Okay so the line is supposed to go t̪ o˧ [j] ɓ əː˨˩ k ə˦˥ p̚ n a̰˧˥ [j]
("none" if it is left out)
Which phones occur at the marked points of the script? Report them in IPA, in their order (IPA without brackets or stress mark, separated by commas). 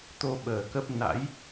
none, j